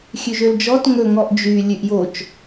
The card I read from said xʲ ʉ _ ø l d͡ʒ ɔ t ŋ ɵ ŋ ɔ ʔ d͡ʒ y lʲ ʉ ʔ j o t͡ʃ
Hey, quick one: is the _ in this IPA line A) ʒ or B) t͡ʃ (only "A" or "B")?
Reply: A